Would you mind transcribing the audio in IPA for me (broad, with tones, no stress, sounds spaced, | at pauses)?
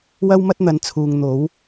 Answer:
w ɐ˥ w m ɐ˥ t̚ n̪ ɐ˨˥ n t͡sʰ uː˨ ŋ n̪ o˨˥ w